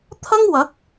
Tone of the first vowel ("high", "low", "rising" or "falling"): high